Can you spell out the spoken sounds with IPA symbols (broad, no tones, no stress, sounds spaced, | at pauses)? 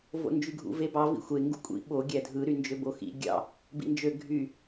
v o̰ n d͡ʒ y ɡʱ ṵ v e b ɑ v ḭ xʷ e ŋ ɡ ṵ kʷʼ ḭ ɓ o ɡʲ æ dʱ ɯ ɾ y n d͡ʒ ø b o x ḭ ɡʲ ɑ̰ | b ḭ n d͡ʒ ø ɡʱ y